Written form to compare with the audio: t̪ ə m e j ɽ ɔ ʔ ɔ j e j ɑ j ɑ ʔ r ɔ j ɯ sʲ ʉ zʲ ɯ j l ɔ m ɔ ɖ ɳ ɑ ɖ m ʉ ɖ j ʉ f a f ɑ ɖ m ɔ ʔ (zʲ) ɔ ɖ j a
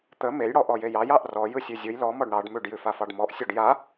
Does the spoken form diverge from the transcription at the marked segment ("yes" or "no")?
yes